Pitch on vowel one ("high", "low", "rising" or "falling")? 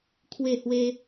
falling